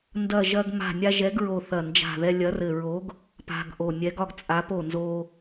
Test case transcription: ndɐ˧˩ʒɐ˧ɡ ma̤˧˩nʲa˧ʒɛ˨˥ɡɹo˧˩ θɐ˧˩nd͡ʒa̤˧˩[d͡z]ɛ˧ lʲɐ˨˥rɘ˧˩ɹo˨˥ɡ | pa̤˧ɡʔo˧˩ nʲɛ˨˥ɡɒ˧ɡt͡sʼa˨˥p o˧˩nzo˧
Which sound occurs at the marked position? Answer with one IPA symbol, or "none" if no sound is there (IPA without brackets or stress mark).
ð